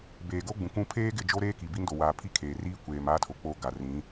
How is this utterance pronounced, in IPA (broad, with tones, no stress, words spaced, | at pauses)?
beː˨ɡo˦ɡ͡bũ˨kũ˦ pʰeː˦ɡɪ˦˨ d͡ʒo˦ ɾeː˦ ki˨bi˦ndo˨waː˨ pʰi˦kʰeː˨riː˦ kʷeː˨m aː˦tʰo˨ k͡po˦ ɡa˨rĩ˨˦